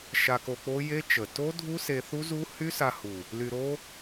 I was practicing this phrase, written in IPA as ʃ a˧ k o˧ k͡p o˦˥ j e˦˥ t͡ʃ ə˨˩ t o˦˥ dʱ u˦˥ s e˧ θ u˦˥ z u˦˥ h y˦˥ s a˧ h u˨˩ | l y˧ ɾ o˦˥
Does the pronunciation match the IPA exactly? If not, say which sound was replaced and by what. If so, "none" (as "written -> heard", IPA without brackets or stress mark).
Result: none